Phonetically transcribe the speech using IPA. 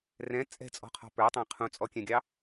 rɛ̃ t͡sʼɛ̤t͡sʼɔ̤qʰɔ̤ pə˞tˤæ̃ qʰũt͡sʼɔkʲɛ̃ɡʲɑ

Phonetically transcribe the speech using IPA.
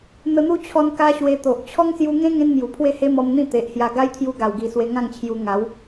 n̪ə˧n̪u˦t͡ɕʰɔ˧n ka˦ɕwe˧ t̪o˨ʔ t͡ɕʰɔ˦ŋsju˧ŋẽ˦ ŋẽ˦nmju˨˩pʰwe˥˧he˦ mɔ˧mn̪ĩ˥˧ t̪e˨ʔhja˧ ɡa˦jt̪ʰju˧ ɡa˨˩wɡi˨˩ swe˧ŋã˥˧ŋt͡ɕʰju˧ ŋa˨˦w

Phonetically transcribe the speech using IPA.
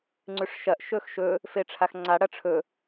ŋ͡ǀʉʂʃɐʔ ʃɵxʃɵ | feʈ͡ʂʰaxŋ͡ǀa ɽɐʈ͡ʂʰɵ

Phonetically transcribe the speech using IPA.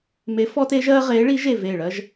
me˧˥fɔː˥te˧˥ʒɜː˥ ʁeː˧˥ɭi˧˥ʒe˦˨ veː˦˨ɭɜ˥ʒ

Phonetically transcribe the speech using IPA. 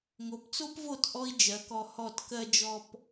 ŋo˩˥pt͡so˥pvo˥˩t ʔɔ˥i̯d͡ʒɜ˩˥kɔ˧ hɔ˥˩tkɜ˥ d͡ʒɔ˥p

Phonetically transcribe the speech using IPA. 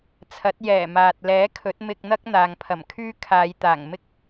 t͡sʰɐ˨˥t̚ jɛː˨˩maː˨t̚lɛː˨˥kʰɵ˨˥t̚ mɪ˧k̚n̪ɐ˥k̚ n̪aː˨ŋpʰɐ˨˩m kʰyː˥kʰaː˨˧j t̪aː˨˩ŋ mɪ˥k̚

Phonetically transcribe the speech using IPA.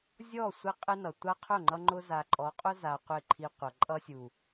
zʲɔ˦˨sʷɪ˦ qʼɪ˦nʌ˨ tʷa˦qʰʊ˦˨ŋ͡ǃʌ˦ŋ͡ǃʊ˦ za˨ǃʼɔ˨˦qʼʊ˦za˨ qʷɪ˦˨ǃʰi˦ qʷʌ˨ǃʼʌ˦sʲu˨

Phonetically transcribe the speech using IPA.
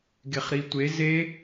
ɡeχɾitʷe ze

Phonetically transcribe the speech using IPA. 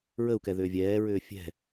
ɹəu̯kɛ ðʏːvʲɛːɹʏː fʲɛ̤

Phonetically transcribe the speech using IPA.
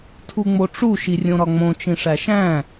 tʰuŋ͡moʈ͡ʂu ʃirʲõɾɒŋ͡mõ t͡ʃĩʂæʃæ̃

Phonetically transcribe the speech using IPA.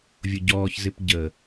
vʲʊɟɔːçzɪp ɟə

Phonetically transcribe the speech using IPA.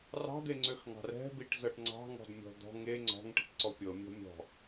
rɑ̤d̪eŋ͡ǀøxŋɑ̤r ɛ̤biʈzɤʈ ŋ͡ǀɑ̤ŋɔ̤dmʲɔ̤ d̪ɔ̤ ŋe ŋ͡ǀɔ̤ŋʈi̤ʈǀɔ pʲɤmʲɔ̤ mʲɔ̤

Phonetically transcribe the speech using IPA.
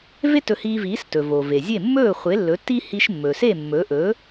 ve˥tɵ˧hiː˧viː˩˥s tɵ˩ vo˩ve˩ zʲe˥˩ mːɵː˥˩χʷe˩˥lːɵ˩˥ tːi˥ hi˧ʃmːɵ˩se˥˩ mːɵ˩˥ʔɵ˩˥

